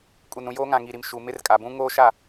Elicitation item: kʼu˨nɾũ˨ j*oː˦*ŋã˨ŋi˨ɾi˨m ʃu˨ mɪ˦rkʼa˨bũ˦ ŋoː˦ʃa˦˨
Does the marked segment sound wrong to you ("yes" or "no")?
no